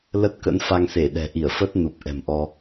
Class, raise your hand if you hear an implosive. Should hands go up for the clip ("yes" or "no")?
yes